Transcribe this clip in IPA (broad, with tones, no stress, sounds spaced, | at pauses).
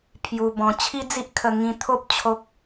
pʰ j u˧ b ɔ̃˧ t͡ɕʰ i˦ d͡z i˦ ʔ kʰ ə˧ ŋ ĩ˧ t̪ʰ o˦ p̚ t͡ɕʰ o˦ k̚